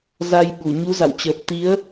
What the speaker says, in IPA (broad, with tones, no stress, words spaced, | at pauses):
za˧jɓu˧˩ ɲu˨˦za̰˧˨wt͡ɕəː˨˩p̚t̪i˨˦ə̯